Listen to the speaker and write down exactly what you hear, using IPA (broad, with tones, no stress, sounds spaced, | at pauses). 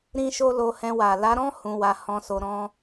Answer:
ɾ ĩ˦ ʃ o˦ l o˧ h ɛ̃˧ w a˨ l a˨˦ ɾ ɔ̃˦ h ũ˧ w a˧ h ɔ̃˧ s o˧ ɾ ɔ̃˦